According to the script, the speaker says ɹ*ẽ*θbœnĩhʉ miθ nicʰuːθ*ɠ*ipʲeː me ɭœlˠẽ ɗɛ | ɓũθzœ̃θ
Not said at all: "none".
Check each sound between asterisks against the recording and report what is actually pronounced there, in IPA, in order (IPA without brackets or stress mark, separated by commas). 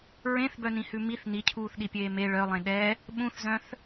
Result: ẽ, ɗ